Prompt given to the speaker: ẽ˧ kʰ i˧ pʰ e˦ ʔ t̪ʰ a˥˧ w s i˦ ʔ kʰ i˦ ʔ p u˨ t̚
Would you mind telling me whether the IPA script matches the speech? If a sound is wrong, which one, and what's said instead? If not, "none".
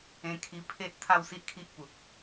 none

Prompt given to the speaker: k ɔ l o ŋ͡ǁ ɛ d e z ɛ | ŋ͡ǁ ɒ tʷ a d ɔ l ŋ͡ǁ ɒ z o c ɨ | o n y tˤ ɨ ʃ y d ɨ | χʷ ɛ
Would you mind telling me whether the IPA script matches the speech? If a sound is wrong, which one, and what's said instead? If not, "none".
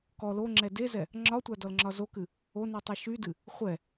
c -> k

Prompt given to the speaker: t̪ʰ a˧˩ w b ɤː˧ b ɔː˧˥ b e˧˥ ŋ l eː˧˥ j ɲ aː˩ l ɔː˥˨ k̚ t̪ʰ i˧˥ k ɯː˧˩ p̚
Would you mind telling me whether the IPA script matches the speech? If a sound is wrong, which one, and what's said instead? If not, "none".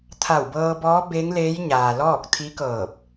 ɯː˧˩ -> ɤː˧˩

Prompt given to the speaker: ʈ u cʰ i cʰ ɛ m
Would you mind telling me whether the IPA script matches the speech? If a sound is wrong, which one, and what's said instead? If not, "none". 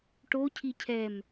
u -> o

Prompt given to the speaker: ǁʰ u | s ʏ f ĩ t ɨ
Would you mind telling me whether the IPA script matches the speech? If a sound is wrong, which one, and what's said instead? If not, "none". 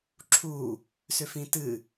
none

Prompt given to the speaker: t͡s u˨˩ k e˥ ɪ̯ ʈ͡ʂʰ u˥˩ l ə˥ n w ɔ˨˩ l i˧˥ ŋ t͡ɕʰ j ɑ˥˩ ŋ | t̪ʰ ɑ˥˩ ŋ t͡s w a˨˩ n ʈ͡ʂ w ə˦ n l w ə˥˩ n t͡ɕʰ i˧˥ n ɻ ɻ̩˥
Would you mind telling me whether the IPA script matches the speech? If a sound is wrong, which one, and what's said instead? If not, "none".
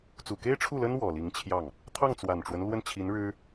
none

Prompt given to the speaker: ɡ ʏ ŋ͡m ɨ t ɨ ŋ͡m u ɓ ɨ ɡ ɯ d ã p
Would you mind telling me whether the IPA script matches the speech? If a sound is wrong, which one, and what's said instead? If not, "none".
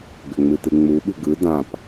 none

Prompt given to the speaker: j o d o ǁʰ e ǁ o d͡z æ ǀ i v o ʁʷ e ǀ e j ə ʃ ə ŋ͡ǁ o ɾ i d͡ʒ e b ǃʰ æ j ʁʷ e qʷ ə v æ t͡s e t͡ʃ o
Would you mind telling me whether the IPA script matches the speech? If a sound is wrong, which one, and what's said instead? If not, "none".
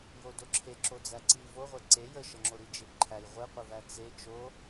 none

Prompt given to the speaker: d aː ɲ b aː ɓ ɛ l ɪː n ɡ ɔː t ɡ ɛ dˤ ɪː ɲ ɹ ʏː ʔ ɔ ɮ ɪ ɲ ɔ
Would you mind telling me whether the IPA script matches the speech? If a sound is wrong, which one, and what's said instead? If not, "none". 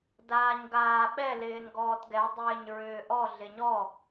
b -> ɡ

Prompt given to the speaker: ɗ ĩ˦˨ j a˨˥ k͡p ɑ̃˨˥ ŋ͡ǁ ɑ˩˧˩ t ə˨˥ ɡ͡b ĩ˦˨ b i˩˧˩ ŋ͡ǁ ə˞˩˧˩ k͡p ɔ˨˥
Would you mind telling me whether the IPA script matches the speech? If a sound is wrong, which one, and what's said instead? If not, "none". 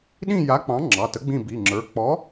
none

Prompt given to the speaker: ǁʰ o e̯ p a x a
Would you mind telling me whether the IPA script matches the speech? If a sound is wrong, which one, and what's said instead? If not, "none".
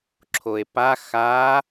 none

